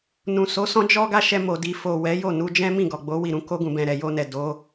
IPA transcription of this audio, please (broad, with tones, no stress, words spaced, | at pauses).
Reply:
nũ˨so˨˦sɔ̃˦ d͡ʒɔ˦ɡa˦ ʃɛ˧mo˨ di˨fo˨ wɛ˨˦jo˦˨nu˧d͡ʒɛ̃˦ mĩ˦˨ɡɔ˨ɡ͡bo˨˦ wi˦˨ɾũ˨˦ko˦ɡũ˧ bɛ̃˧ ɾɛ˨jo˧nɛ˨ do˨˦